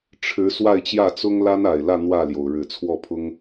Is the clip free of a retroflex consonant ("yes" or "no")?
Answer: no